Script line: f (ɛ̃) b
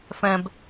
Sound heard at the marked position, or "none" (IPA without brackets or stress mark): ɛ̃